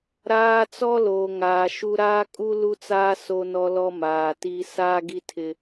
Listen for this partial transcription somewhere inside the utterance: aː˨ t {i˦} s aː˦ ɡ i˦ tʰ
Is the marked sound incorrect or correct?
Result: correct